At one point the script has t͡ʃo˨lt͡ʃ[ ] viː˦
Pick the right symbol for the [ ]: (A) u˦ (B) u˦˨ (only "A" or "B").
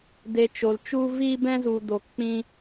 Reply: A